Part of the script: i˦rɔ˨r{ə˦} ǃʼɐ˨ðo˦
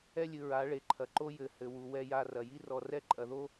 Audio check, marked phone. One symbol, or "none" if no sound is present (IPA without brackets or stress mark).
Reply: ɛ˦